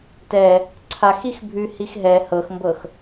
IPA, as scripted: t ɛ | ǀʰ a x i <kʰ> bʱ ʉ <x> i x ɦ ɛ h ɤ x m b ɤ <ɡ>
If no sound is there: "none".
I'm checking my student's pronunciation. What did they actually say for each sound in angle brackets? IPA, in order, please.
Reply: x, h, x

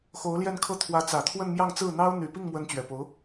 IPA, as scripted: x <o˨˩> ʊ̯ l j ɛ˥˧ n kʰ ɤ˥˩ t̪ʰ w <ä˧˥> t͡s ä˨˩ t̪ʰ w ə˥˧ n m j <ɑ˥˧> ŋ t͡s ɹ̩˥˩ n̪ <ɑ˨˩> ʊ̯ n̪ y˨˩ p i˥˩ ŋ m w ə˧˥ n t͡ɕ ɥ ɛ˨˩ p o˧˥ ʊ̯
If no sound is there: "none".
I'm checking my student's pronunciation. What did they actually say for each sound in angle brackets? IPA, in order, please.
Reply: o˧˥, ä˧˥, ɑ˥˧, ɑ˥

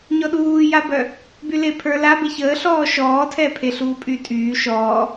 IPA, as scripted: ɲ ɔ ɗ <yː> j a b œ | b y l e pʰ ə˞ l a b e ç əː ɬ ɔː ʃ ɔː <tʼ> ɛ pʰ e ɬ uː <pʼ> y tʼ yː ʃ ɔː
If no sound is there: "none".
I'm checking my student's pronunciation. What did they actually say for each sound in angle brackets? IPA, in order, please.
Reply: uː, tʰ, pʼ

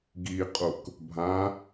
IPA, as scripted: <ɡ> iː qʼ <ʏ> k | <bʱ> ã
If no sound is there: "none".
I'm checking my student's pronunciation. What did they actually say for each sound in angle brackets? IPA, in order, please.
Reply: ɡ, u, bʱ

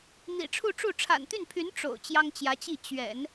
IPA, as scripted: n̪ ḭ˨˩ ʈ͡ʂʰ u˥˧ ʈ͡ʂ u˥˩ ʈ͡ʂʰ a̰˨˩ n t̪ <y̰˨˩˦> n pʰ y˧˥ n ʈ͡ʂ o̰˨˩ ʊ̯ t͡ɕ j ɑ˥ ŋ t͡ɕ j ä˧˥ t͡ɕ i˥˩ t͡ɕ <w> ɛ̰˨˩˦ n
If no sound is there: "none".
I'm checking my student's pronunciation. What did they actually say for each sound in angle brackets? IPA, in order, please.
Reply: y˥˩, ɥ

